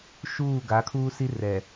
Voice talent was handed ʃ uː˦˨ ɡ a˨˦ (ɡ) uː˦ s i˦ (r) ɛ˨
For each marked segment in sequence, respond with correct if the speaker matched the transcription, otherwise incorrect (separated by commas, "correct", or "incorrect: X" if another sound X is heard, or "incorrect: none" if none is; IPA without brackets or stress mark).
incorrect: kʰ, correct